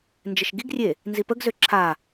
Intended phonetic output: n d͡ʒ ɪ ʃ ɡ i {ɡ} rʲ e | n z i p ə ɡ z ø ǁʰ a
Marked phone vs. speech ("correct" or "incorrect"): correct